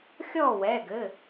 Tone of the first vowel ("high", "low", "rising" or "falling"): falling